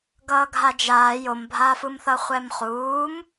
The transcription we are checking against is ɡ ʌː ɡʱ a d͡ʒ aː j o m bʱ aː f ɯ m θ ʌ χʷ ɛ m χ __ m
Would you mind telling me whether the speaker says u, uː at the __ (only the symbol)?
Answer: uː